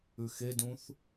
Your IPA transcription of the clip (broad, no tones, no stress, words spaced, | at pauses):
ʉxedũθ